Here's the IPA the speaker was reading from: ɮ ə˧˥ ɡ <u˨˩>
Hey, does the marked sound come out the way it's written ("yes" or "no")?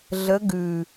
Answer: no